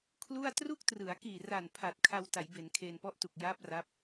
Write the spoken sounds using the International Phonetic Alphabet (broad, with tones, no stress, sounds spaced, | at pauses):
kʰ l u˥˩ a̯ t r u˥˩ k̚ t r ɯ˩˦ a̯ k iː˨˩ r a˨˩ n pʰ aː˨˩ t̚ kʰ a˧ w t a˩˦ j b e˩˦ n kʰ eː˧ n p ɔ˦˥ ʔ t u˨˩ k̚ j aː˦˥ p̚ r a˦˥ p̚